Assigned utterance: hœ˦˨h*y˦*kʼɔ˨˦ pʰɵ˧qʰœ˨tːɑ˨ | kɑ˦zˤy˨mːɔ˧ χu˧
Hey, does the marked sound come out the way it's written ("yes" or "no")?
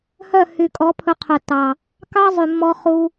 no